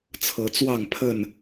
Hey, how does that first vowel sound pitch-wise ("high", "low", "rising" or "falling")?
rising